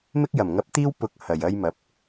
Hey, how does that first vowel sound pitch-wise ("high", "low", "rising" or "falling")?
high